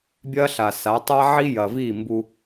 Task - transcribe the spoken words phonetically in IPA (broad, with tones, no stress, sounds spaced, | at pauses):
bʲ ɐ˦ ɬ a˨ s a˨˦ tˤ a˦ ʕ i˦ j ɐ˨ v i˦˨ m b u˦